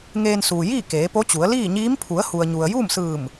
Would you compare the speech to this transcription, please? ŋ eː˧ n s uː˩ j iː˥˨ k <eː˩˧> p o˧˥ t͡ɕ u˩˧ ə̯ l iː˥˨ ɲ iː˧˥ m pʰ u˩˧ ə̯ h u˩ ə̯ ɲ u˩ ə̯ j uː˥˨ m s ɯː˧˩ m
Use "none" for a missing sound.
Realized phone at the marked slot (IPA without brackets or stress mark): eː˩˧